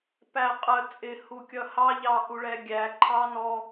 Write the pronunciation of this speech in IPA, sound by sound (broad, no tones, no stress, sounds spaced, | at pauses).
p æ qʼ ə t͡sʼ ɪ h u kʲ ʌ h ɑ ʎ ɑ ʔ u ɭ ɛ ɡʲ æ ǃʰ ɑ n ɔ